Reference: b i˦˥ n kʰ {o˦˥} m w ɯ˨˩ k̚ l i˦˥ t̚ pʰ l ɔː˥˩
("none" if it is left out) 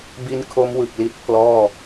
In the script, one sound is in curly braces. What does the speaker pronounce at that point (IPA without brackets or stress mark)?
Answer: o˦˥